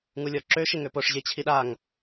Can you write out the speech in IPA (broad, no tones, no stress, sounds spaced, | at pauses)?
ŋ u lʲ ɔ ǁ ø ʃ e ŋ ø p o ʂ ʑ e t͡ɕʰ i ɗ a ŋ